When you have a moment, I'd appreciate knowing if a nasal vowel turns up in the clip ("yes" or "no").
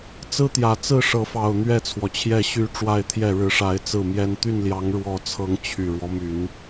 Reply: no